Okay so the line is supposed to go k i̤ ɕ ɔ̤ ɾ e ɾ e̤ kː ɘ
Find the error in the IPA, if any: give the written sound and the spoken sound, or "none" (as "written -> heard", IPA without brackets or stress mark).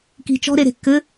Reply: ɕ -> t͡ʃ